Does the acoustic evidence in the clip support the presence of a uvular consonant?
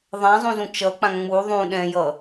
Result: no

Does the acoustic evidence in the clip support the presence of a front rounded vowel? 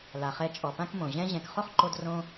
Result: no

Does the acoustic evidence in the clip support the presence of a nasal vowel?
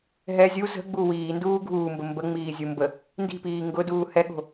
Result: no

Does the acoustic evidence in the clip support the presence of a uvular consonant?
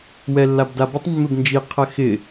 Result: yes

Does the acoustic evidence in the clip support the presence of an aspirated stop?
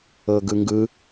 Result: no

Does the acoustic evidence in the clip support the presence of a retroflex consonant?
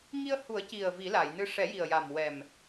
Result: yes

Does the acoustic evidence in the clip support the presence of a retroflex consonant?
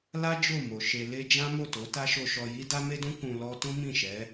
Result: no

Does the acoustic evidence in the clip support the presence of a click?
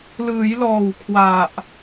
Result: no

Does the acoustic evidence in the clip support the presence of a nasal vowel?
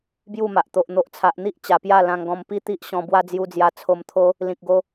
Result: yes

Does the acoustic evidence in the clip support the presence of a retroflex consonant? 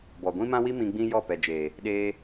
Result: no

